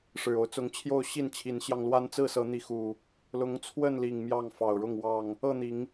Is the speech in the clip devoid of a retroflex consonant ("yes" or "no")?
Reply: no